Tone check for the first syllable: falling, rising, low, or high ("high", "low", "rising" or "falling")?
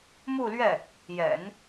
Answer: falling